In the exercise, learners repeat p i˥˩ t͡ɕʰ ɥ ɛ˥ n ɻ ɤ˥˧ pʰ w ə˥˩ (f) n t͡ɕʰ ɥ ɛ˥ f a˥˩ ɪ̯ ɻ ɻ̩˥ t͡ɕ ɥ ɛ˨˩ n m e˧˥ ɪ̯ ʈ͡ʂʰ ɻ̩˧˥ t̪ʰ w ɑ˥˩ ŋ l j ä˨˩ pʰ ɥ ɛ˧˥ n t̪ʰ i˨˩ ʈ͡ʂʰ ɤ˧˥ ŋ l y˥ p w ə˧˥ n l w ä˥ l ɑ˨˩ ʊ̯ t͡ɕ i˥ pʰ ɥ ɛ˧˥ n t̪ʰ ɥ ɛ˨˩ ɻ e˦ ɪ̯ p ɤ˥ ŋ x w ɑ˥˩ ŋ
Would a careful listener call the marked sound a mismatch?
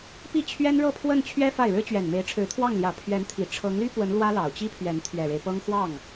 yes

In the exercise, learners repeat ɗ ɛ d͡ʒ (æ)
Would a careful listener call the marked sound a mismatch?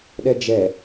yes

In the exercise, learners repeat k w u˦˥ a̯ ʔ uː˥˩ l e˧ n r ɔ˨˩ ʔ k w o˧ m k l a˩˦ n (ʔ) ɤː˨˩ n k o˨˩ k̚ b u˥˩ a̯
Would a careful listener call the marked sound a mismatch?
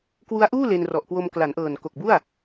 no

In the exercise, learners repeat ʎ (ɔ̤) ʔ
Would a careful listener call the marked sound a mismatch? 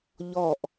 yes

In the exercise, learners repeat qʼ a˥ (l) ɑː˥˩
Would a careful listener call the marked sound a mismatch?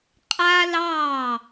no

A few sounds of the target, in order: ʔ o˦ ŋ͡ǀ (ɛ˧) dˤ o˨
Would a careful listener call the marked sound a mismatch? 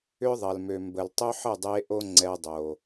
no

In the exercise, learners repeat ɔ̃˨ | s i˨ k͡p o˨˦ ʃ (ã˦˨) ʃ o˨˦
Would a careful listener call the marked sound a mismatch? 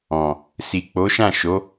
no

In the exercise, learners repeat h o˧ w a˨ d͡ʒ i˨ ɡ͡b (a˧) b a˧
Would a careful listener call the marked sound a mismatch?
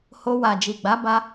yes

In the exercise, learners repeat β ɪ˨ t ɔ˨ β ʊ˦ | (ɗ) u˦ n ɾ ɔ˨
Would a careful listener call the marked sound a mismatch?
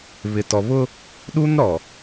no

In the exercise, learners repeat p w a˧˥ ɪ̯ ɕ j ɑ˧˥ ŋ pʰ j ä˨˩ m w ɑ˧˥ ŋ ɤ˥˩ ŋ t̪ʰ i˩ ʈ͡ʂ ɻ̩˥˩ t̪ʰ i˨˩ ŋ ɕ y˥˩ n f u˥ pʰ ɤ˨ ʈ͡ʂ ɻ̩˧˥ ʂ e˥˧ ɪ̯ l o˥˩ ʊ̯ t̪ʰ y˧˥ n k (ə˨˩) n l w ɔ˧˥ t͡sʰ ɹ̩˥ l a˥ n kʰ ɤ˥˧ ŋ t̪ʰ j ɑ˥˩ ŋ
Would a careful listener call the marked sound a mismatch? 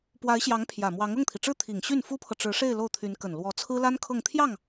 no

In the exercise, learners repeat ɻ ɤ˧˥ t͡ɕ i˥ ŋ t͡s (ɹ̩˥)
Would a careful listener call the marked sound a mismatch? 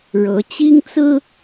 no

